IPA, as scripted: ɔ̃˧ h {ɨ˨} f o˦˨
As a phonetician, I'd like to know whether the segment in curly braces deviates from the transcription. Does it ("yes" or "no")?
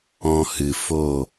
no